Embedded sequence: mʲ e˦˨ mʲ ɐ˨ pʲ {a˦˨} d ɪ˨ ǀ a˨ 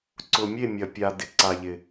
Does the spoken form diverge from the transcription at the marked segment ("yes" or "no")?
yes